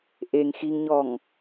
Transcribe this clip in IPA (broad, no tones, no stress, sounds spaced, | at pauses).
ʔ e ŋ x i ŋ ɲ ɔ ŋ